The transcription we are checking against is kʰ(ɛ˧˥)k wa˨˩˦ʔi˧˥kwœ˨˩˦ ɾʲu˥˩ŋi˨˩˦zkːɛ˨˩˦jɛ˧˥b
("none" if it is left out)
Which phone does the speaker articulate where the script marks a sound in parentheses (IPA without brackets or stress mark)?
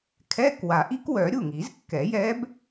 ɛ˧˥˧